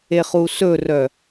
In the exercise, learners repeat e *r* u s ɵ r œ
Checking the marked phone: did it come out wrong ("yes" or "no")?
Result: yes